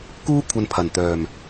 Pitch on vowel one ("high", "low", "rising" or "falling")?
high